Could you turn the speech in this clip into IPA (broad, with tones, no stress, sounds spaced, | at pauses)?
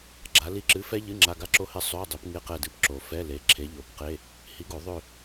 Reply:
ɡ͡ǁ a˨˥ l i˥ ǁ ɨ˧˥˧ f ɛ˥ ʎ ɨ˧˥˧ ŋ͡ǁ a˧˥˧ ɡ a˥ ǁ o˥ h ɪ˥˨ sˤ ø˧˥˧ dˤ ɪ˨˥ p ŋ ɪ˥˨ q ɛ˥˨ d ɨ˥˨ p ǁ o˨˩ f ɛ˧˥˧ l e˨˥ ǁʰ e˨˥ ʎ o˨˩˦ p q e˧˥˧ | h i˨˥ ɡ o˨˩˦ ðˤ ø˥˨